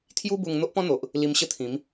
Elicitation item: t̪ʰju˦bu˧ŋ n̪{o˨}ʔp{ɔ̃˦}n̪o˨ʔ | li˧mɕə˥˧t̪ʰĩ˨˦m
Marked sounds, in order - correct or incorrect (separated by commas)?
incorrect, correct